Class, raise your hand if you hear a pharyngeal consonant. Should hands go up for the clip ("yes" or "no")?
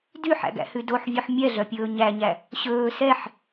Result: yes